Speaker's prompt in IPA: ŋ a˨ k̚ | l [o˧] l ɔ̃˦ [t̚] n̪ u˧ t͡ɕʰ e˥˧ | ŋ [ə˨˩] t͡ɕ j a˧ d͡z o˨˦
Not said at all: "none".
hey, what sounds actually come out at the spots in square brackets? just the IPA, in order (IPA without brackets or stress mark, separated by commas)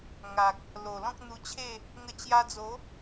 o˨˩, k̚, ə˧